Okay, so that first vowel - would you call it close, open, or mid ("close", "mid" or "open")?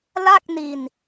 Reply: open